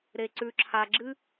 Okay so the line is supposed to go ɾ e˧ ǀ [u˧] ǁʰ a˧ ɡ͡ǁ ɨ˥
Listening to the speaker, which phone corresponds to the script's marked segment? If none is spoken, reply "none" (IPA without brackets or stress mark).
ʉ˧